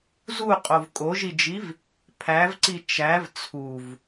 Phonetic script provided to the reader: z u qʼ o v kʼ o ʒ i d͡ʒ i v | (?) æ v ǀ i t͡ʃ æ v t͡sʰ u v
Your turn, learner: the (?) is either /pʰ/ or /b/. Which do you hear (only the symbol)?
pʰ